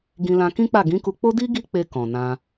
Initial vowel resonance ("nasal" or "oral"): nasal